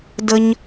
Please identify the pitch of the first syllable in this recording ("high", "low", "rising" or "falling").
high